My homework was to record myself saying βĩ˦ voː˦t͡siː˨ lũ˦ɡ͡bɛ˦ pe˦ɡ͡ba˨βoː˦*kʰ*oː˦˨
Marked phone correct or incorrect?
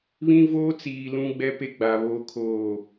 correct